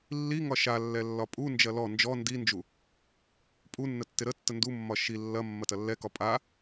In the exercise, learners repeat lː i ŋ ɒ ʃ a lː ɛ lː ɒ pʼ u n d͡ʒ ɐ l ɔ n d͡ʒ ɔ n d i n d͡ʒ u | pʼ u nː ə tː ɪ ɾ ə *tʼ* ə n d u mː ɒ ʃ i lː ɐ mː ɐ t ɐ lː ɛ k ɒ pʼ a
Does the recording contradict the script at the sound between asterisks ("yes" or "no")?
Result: yes